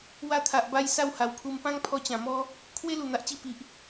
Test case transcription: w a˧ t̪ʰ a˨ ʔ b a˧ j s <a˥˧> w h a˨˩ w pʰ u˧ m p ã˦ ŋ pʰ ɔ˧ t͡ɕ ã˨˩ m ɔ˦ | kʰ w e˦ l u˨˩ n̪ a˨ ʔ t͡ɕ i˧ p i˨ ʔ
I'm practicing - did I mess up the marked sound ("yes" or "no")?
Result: no